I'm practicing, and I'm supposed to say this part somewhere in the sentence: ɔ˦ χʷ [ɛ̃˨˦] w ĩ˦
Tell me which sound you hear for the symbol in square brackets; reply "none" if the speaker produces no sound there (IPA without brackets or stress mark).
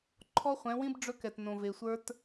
ɛ̃˨˦